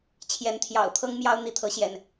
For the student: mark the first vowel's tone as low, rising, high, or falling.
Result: rising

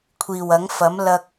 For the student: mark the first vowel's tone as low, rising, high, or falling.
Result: low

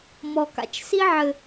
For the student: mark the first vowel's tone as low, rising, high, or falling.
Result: low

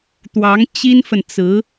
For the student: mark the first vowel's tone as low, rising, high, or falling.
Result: rising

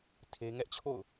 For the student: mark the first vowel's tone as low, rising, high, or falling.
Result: high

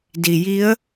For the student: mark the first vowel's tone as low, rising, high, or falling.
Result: low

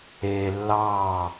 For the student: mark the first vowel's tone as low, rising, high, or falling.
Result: low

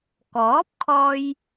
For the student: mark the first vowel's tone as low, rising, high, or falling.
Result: rising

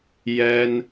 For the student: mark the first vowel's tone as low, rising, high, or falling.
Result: high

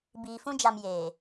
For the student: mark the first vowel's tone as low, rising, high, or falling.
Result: low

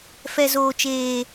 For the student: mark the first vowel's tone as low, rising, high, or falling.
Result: low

